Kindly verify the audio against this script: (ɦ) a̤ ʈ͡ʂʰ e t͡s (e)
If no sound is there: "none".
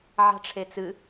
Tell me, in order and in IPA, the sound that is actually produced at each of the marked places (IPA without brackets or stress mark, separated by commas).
ʕ, ɨ